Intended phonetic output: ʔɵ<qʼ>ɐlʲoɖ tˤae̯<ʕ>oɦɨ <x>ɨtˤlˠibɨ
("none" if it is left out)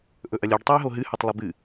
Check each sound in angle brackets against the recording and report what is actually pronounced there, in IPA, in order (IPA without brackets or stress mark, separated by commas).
ʔ, ɦ, h